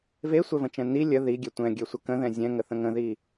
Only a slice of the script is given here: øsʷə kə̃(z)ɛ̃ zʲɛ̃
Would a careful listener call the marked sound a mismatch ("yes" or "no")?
yes